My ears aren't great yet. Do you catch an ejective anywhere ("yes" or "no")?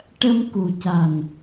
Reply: no